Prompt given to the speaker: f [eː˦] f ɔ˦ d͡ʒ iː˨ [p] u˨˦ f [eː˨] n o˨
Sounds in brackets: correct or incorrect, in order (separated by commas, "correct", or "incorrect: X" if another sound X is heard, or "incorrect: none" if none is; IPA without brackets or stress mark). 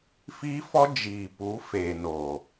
incorrect: iː˦, correct, correct